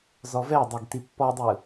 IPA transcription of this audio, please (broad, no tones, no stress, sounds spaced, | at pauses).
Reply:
z ɔ v ɛ dˤ ɛ ɡ t i pː ɔ dˤ ɯ